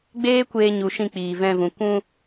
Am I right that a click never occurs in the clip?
yes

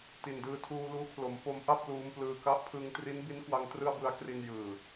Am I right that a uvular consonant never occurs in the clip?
yes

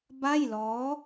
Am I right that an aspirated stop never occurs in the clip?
yes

